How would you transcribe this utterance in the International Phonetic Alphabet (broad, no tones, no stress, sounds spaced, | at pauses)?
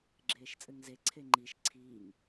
ɡ͡ǁ eː ʃ t͡sʼ ɘ ŋ z e ǀʰ e ŋ͡ǃ i ʃ ǀʰ iː ŋ